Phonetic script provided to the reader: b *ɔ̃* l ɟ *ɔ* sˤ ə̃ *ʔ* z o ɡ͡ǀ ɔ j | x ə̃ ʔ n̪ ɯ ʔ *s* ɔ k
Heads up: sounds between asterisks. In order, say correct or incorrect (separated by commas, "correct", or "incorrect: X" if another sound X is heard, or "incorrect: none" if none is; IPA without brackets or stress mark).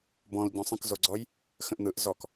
correct, incorrect: ɔ̃, incorrect: k, incorrect: z